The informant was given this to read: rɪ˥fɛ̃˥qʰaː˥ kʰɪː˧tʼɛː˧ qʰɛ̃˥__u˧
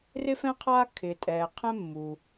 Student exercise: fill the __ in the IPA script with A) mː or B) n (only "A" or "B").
A